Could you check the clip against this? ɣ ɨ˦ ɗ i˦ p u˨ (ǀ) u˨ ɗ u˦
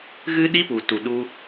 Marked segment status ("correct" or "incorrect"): incorrect